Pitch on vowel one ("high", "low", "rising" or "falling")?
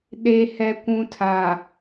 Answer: low